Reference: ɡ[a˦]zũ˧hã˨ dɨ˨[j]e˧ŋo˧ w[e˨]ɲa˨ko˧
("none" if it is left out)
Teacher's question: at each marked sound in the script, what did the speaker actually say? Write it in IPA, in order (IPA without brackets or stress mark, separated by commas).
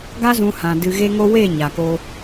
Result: a˦, ɣ, e˦˨